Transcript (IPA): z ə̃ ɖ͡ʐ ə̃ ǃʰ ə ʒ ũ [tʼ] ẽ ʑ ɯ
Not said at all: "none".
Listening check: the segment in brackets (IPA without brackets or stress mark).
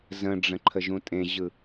tʼ